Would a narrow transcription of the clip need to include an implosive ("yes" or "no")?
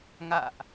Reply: no